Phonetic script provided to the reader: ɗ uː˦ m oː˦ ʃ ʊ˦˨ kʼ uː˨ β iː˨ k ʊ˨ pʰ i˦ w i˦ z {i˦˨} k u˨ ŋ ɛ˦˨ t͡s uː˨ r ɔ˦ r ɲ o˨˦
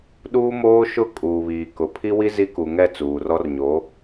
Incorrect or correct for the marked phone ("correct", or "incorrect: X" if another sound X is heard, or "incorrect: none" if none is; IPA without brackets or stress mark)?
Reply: incorrect: i˦